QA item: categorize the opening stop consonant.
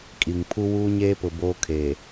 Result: ejective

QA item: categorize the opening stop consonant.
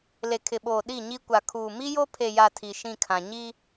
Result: aspirated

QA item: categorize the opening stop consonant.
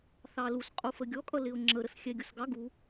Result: ejective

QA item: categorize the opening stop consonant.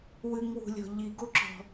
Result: plain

